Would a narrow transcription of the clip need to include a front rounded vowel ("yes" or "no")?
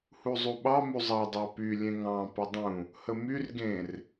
yes